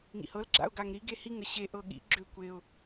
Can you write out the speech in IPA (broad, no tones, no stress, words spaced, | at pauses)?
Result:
ŋḭhɤl ɡ͡ǁa̰ʊ̯ɡaŋɾi ɡehiŋ əɕe ʔɤɠḭ ɡ͡ǁøkʷeʊ̯